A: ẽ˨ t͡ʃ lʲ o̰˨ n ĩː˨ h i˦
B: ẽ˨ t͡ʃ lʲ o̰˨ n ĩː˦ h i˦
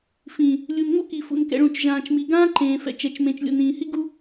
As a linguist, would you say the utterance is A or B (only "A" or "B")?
A